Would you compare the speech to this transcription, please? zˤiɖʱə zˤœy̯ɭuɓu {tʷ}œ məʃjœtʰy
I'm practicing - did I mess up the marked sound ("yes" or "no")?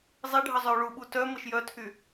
yes